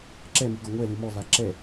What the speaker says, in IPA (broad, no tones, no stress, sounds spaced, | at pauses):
ǁ ɛ m i ɡ ɔ ŋʷ ɛ l ɨ m ɔ v a ǁ ɛ